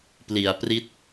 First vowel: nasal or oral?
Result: oral